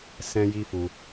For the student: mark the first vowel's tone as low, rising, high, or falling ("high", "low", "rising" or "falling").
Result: high